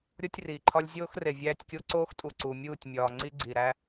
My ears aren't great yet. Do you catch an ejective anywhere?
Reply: yes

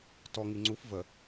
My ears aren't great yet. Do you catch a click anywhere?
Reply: yes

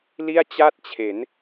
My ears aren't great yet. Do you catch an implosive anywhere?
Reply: no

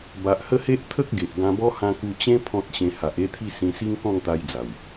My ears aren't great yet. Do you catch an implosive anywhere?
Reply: no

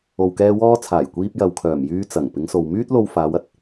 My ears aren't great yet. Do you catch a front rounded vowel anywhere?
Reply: yes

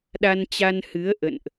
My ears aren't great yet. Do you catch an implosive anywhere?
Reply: yes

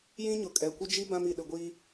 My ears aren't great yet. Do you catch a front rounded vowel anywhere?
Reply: no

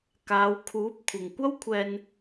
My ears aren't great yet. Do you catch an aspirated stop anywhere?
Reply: yes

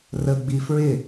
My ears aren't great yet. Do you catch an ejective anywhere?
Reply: no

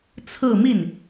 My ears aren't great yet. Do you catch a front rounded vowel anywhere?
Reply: no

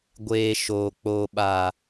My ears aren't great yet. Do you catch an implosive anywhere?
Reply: yes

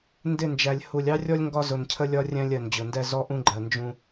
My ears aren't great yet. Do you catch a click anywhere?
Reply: yes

